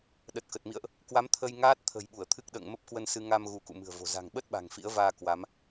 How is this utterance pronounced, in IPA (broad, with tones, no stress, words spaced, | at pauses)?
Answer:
ɗə˨˩t̚kə˨˩t̚mḭ˧˨ə̯ʔ | kwa˨˦m t̪ʰə˧j ŋaː˦˥t̚t̪ʰə̤˨˩j ɓu˧˩ə̯t̪ʰɨ˦˥k̚ɗə̰ː˧˨ŋ mə˦˥p̚kwə˧n sɨ˧ŋa˧m ɣu˨˦kṵ˧˨mɨ̤˨˩ə̯vo̤˨˩ za̤˨˩ŋɓə˦˥t̚ ɓa̤˨˩ŋfḭ˧˥ə̯vaː˧ kwa˨˦m